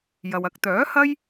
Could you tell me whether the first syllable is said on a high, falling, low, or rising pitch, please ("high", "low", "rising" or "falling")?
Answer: low